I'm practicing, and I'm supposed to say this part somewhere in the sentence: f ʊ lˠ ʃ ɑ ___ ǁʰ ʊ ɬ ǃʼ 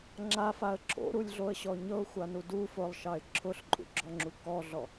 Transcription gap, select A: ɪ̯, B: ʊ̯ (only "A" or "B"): A